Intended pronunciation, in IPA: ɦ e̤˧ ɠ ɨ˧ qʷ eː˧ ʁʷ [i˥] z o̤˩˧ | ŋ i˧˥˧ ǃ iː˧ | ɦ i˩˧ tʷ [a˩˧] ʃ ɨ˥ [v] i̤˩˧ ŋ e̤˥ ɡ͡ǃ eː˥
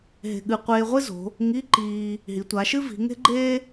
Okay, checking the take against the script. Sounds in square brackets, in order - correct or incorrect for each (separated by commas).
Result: incorrect, correct, correct